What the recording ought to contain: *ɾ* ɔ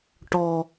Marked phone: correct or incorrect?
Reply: incorrect